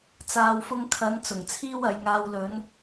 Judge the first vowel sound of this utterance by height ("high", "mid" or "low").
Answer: low